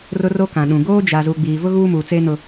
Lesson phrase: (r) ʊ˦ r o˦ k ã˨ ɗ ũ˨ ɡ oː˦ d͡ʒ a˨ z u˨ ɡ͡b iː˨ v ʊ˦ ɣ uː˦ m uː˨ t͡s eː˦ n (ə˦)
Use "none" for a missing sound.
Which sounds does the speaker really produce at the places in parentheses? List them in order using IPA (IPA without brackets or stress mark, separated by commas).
r, ʊ˦